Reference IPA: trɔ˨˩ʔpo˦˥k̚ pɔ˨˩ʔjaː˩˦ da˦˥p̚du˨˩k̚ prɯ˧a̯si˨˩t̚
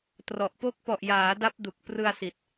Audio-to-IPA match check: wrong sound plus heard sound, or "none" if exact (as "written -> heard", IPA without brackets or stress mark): none